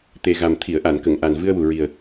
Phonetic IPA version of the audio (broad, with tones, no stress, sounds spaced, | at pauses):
t̪ e˨˩ ɣ a˨˩ m t̪ʰ i˨˩˨ ə̯ ʔ a˨˩˨ n k ə˨˩˨ ŋ ʔ a˨˩ n v ɨ˧ ə̯ w u˨˩ ɹ i˨˩ ə̯